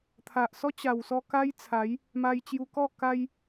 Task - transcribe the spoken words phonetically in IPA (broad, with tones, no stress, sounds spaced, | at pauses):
t̪ʰ a˨ ʔ s ɔ˦ t͡ɕ a˨˩ w s ɔ˧ k a˦ j t͡sʰ a˨˦ j | m a˧ j t͡ɕ j u˧ k ɔ˥˧ k a˧ j